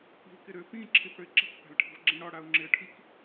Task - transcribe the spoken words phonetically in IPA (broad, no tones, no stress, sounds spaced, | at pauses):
i̤ l k ɪ ɾ ø p ĩ ǁʰ i p ɽ ø ɪ̯ ǁ i̤ k p a̤ l ʈʰ i̤ v ɡ͡ǁ ẽ ɽ ɒ ɽ a ʊ̯ ŋ͡ǁ ɪ ə̯ ʈʰ i k